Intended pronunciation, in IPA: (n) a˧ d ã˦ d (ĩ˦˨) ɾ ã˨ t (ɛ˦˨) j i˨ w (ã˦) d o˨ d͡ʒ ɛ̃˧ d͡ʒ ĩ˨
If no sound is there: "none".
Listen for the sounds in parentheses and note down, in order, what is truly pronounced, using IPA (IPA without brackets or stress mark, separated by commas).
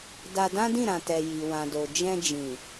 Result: d, ĩ˦˨, ɛ˨, ã˨